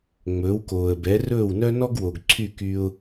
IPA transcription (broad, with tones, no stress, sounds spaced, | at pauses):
ŋ͡m ɵː˩˥ w k oː˩ ə̯ b ɛ˩˥ r ɵː˥˩ w n œ˥ n ɔ˥ ɡ w o˩ ɡ ǀʰ y˥˩ k y˧ ʊ̯